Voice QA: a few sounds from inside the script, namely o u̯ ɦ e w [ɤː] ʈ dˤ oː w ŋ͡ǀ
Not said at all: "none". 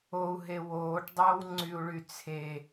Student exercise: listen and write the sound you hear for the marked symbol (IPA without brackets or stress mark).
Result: oː